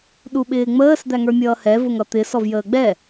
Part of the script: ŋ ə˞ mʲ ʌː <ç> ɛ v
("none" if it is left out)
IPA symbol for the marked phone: h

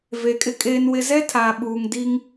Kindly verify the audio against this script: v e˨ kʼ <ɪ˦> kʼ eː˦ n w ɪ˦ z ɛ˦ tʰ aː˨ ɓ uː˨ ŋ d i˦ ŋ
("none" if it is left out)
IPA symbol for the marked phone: ɪ˦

